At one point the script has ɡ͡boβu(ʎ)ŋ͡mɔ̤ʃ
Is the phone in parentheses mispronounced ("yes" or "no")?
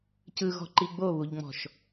no